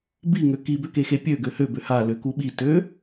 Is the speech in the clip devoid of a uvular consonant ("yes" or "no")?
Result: yes